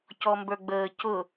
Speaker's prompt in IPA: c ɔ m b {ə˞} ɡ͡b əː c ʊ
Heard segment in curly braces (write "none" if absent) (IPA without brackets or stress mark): ə˞